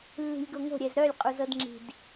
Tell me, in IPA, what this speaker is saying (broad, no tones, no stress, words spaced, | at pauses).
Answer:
lːi̤lʲɡoŋo̤ ɾʲɛzɾœlʲ qʼuzɤdŋ͡ǁi̤d